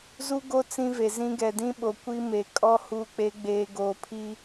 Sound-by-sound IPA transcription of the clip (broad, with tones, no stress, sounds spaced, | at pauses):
z u˦ ɡ o˦ t͡s ĩ˦ v e˨ z ĩ˦ ɡ ɛ˨ d ĩ˦ ɓ o˨ kʷ i˦ m e˨ kʼ ɔ˦ h uː˨ k͡p e˨˦ ɡ͡b eː˨ ɡ oː˨ pʰ i˦